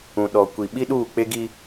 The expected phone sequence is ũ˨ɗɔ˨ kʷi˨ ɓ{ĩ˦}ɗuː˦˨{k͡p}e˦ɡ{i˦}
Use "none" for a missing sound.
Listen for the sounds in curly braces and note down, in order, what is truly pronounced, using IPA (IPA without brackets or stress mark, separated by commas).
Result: i˦, k͡p, i˦